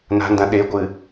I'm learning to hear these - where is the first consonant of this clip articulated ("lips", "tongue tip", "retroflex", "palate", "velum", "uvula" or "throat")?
tongue tip